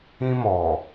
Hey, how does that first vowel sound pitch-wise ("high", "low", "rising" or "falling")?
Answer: high